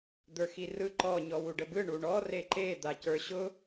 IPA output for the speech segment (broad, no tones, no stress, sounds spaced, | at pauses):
d̪ ə˞ x i r ɯ ǃ ɔ ɲ ɔ w u ɖ ə b ɯ ɳ u ɳ ɔ r e ǃ e d̪ a c ə˞ ɕ ʊ